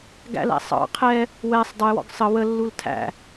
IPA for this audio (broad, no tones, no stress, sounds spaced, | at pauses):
ɡ æ̰ l æ̰ sˤ ɑ̰ qʰ ɛ | w ɛ sˤ dˤ ə j w ɔ̰ ɡ sˤ ə w ə lː u l tʰ æ̰